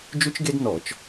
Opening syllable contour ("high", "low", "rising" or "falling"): high